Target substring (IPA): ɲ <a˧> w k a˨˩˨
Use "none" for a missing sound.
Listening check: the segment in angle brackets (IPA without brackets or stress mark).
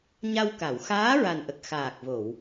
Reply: a˧